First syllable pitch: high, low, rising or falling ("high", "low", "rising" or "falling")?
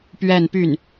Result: falling